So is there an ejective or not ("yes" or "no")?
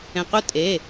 yes